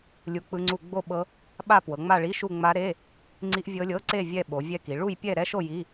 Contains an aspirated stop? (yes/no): no